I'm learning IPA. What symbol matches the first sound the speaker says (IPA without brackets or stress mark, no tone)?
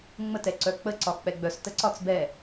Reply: ŋ͡m